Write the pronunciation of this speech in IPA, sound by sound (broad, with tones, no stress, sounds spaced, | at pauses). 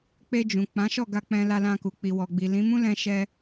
k͡p e˧ d͡ʒ ũ˨ k͡p ã˨˦ ʃ ɔ˦˨ ɡ a˧ k͡p ɛ̃˧ l a˧ l ã˧ k u˨ k͡p i˨ w ɔ˨ ɡ͡b i˨ l ĩ˨˦ m ũ˦ l ɛ̃˧ ʃ ɛ˧